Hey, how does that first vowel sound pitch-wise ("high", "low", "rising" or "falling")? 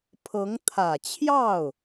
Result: rising